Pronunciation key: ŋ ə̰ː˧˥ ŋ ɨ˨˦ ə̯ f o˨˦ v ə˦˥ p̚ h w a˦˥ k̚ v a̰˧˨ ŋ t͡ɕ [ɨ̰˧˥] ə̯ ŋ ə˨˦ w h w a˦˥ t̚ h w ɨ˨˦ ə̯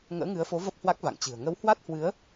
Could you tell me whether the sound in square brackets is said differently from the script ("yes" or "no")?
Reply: yes